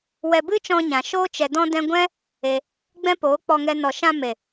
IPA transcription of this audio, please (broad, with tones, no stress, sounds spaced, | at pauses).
w ɛ˧ b ɨ˦ t͡ʃ ɔ̃˧ ɲ ã˨ ʃ oː˦ t͡ʃ ɛ˧ d ɔ̃˦ d ɛ̃˦ ɡʷ ɛ̃˦ | e˧ | ɡ͡b ɛ̃˦ p oː˨˦ k͡p ɔ˧ ŋ ɛ˧ n ɔ˨ ʃ ã˧ m e˨